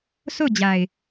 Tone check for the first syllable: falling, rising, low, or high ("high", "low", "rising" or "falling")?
falling